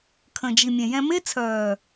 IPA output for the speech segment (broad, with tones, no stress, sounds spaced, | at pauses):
kʰ ə̃˨ d͡ʒ i˨ mʲ ɛ̃˨ j ɛ̃˧ m e˦ t͡sʰ œː˨